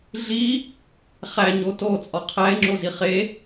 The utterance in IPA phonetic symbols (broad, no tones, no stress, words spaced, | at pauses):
ɮi | χæɲo tot͡sʼɒ qʰæe̯ŋ͡ǁozi χe